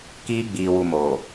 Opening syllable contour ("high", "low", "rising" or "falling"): high